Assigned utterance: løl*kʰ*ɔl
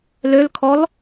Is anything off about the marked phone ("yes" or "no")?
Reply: no